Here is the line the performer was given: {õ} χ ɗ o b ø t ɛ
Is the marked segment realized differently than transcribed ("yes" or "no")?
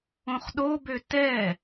no